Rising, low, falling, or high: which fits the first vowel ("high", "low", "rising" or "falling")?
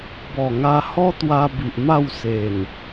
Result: low